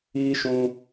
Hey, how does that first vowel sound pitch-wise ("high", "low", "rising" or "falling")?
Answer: high